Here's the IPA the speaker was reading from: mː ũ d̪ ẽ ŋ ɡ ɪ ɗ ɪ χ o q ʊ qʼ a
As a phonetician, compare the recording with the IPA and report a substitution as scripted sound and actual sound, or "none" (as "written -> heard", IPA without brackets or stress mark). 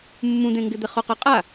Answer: ɗ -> d̪